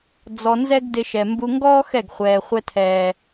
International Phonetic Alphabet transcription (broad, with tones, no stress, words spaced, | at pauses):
d͡zɔ˧nzɛ˦ɡ dɪ˧ʃɛ˨ mbu˧ŋɡɔː˦ xɛ˦˨ɡχʷɛː˨ χʷɛ˧tʰɛː˨